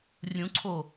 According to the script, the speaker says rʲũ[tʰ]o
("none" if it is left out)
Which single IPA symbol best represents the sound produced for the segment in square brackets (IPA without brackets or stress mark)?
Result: ǀʰ